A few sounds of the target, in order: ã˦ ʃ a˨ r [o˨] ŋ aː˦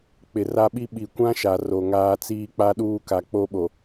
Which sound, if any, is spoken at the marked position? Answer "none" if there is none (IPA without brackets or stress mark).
o˨